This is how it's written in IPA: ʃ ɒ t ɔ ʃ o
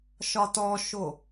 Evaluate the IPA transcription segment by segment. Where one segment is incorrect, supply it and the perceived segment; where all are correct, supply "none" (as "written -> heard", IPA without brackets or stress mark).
none